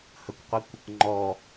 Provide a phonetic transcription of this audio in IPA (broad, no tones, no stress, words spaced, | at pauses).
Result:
həkʷqʷikʷ | ŋ͡ǃɔ